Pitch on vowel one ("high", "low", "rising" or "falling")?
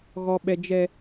low